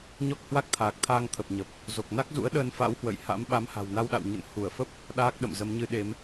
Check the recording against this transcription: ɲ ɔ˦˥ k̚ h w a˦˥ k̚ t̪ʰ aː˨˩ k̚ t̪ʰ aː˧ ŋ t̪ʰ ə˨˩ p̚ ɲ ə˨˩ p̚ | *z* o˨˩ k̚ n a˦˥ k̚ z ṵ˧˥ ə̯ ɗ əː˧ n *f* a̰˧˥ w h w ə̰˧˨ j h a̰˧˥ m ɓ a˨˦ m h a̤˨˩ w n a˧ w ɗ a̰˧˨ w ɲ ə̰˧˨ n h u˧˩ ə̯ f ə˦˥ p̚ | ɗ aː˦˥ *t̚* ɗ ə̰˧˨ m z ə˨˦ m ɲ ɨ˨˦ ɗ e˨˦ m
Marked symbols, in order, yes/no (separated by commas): yes, yes, no